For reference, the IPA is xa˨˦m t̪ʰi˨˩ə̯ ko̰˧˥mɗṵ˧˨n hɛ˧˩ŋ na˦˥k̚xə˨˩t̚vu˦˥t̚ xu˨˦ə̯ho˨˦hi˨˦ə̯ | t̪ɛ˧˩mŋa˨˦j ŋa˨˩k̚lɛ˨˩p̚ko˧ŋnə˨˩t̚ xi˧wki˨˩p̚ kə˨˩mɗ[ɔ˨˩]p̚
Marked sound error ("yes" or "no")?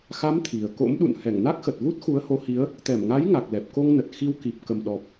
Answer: no